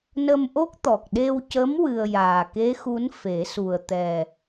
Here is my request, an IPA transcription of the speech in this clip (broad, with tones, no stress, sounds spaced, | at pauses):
n ə˧ m ʔ o˦˥ k̚ t̪ ɔ˨˩ k̚ ɗ e˧ w c ə˧˥ m w ɨ˧ ə̯ j aː˨˩ k e˧˥ x u˧˥ n f e˨˩˦ s u˨˩ ə̯ t̪ ɛ˨˩